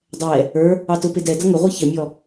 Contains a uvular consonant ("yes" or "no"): yes